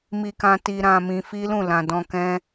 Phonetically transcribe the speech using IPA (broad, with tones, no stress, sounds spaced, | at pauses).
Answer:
m i˧ k ã˧ t i˧ ɾ ã˧ m ĩ˧ f i˦ l ũ˦˨ l ã˨ d ɔ̃˧ k ɛ̃˦